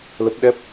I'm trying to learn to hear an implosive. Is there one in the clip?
yes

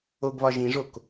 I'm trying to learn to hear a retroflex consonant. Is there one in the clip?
yes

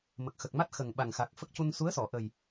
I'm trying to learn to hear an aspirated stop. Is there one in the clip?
no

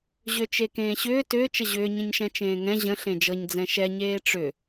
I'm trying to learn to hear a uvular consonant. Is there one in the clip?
no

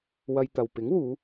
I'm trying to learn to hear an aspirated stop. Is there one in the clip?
no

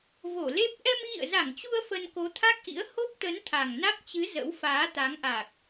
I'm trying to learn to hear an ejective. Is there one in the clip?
no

